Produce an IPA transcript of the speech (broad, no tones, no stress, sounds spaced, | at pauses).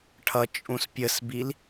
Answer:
ʈʰ ʌ t͡ʃʼ ũ s pʲ ə s b i l